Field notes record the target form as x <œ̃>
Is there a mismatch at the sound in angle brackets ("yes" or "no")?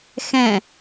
yes